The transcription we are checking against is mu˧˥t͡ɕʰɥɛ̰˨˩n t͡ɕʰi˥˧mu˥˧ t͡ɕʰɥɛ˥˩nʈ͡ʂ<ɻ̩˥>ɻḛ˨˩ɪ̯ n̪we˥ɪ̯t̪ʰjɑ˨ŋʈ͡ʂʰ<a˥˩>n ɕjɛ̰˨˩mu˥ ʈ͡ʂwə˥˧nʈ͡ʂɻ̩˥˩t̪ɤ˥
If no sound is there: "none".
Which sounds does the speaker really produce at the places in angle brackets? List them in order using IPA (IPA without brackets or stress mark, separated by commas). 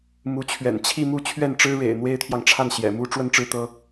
ɻ̩˥, a˥˩